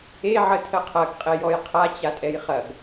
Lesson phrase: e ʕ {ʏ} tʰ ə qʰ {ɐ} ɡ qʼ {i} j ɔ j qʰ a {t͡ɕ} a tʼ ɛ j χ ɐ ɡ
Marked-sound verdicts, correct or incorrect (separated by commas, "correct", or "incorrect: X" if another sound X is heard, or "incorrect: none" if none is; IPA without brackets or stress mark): incorrect: ə, correct, incorrect: e, correct